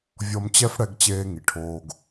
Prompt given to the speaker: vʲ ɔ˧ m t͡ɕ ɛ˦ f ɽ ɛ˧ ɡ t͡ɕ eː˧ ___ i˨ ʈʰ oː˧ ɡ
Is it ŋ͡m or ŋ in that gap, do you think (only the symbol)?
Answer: ŋ